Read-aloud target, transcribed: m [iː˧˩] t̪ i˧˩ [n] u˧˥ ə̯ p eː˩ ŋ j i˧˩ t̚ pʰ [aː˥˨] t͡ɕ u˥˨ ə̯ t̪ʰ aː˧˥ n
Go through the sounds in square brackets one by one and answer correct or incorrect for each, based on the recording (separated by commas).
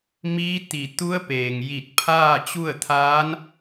incorrect, incorrect, correct